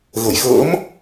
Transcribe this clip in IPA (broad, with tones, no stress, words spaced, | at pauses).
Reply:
ɣə˧˩jxə̰ː˧˥m